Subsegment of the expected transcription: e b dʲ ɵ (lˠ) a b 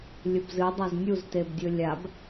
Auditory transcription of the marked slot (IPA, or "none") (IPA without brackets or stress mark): lʲ